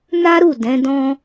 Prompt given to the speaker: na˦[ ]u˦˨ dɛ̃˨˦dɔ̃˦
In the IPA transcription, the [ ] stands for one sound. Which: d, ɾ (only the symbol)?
ɾ